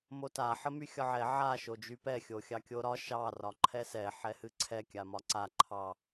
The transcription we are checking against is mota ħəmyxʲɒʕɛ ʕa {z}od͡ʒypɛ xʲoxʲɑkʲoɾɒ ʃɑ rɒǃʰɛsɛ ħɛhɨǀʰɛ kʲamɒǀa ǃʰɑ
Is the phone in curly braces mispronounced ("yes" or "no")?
yes